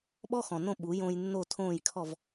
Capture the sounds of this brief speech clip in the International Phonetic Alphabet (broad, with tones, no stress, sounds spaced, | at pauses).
ɓ ɔ˥ x ɔ̃˩ n õ˥˩ ɓ u˩˥ j õ˧ j nː o˥˩ tʰ õː˥˩ j kʰ ɔ˥˩ v